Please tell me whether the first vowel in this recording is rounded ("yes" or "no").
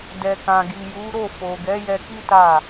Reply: no